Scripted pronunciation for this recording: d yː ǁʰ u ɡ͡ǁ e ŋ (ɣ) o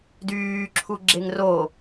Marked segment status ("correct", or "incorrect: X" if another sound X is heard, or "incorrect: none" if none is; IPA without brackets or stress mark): incorrect: r